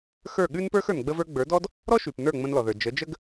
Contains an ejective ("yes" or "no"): no